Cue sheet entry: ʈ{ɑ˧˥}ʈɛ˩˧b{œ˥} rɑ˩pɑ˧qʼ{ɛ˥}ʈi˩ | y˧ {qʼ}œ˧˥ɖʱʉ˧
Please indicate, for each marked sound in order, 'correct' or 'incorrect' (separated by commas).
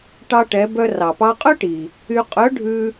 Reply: incorrect, incorrect, incorrect, correct